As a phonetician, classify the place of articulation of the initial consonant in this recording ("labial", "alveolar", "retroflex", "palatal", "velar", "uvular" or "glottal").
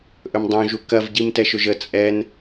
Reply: glottal